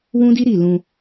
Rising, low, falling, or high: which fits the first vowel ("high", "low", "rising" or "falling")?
high